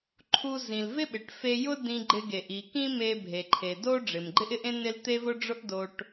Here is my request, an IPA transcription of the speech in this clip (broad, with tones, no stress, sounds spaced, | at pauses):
ǃʰ u˧ z ĩ˩ l v ɪ˥ ɓ ɪ˩ ʈ f e˧ j ʊ˥ d ĩ˧ ɡ͡ǃ ɪ˧ ɡ e˩ ʔ i˩ k ĩ˥ m e˧ bʱ e˩ ǃʰ e˩ d o˥ ɖ͡ʐ ɪ˩ m ɡ͡ǃ ɪ˥ ʔ ɪ˥ ʔ ẽ˥ n ɪ˥ l t̪ e˥ v ʊ˥ ɖ͡ʐ ʊ˥ ʔ d o˧ ʈ